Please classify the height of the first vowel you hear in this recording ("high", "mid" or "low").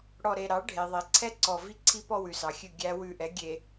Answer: mid